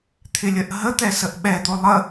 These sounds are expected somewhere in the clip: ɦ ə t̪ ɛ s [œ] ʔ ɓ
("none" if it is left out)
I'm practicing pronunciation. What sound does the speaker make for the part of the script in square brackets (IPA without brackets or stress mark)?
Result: ə